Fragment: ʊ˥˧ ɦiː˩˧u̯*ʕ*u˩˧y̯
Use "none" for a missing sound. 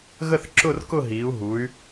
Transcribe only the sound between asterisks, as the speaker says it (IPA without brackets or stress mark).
ɦ